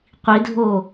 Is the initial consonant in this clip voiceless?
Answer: yes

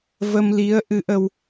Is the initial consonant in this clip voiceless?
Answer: no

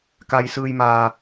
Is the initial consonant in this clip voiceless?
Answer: yes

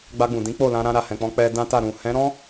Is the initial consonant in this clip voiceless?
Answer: no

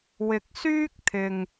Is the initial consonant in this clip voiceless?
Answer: no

